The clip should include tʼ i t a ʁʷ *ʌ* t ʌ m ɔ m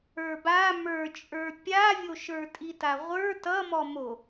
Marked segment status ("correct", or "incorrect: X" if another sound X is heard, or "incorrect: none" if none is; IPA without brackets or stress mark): incorrect: ə˞